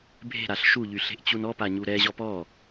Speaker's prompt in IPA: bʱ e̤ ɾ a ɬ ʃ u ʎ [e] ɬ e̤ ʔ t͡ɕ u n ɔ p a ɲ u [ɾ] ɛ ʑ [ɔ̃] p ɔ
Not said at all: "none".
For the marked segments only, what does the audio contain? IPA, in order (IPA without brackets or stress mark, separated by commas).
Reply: y, ɾ, ɔ